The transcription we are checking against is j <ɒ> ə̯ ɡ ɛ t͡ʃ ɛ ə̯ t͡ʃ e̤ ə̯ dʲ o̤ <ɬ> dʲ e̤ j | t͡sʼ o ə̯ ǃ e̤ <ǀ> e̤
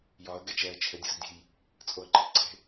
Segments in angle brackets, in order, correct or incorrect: correct, incorrect, correct

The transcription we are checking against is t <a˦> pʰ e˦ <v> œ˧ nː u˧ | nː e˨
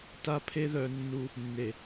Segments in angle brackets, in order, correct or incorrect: correct, incorrect

